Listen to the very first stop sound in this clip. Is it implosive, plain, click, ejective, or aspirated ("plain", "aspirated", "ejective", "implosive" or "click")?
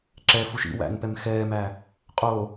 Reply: click